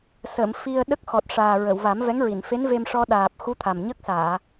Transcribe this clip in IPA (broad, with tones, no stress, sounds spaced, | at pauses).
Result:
s ə˨˩˨ m f i˧ ə̯ ɗ ə˦˥ k̚ x ɔ˨˩ t̚ ʂ aː˨˩ ɹ ə˨˩˨ w v a˨˩˦ m v ɛ˧˥ ŋ ɹ i˨˩˨ n f e˧˥ n v e˧ m ʂ ɔ˧ ɗ aː˨˩ p̚ x u˧˥ t̪ʰ a˨˩ m ɲ ə˦˥ k̚ s aː˨˩˨